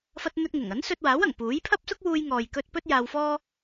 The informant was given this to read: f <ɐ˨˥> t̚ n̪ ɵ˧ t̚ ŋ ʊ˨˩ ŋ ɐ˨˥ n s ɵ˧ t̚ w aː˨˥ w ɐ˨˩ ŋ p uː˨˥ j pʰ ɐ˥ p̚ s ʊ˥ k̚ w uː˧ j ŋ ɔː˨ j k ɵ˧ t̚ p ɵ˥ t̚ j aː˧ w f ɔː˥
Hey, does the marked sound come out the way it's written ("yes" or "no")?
no